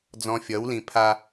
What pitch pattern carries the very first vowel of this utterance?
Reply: high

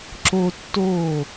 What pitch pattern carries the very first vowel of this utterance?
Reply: high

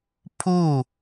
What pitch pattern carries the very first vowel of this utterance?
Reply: falling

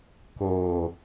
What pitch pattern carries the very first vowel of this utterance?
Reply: low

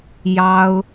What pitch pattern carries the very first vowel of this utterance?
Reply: high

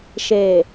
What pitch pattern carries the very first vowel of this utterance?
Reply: low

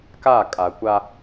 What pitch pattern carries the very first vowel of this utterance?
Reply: falling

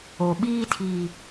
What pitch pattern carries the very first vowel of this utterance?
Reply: low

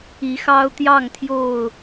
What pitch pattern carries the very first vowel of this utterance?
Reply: rising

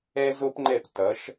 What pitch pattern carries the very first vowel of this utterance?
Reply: high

